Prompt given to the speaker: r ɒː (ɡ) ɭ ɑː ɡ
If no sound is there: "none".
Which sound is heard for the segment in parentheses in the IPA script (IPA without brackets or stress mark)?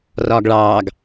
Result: ɡ